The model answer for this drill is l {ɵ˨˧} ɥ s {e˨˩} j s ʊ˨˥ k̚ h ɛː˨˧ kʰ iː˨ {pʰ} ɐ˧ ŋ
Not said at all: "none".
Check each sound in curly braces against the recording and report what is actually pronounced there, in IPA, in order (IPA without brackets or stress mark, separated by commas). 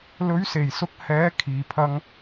ɵ˨˧, e˨˩, pʰ